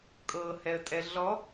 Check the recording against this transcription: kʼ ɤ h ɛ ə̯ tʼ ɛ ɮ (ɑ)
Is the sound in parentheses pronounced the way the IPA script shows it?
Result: no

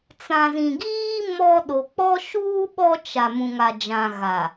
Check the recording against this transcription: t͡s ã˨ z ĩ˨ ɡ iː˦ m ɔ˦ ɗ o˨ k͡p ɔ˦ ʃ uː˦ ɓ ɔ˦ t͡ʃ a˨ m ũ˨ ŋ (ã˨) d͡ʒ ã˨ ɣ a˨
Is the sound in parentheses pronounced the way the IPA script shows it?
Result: no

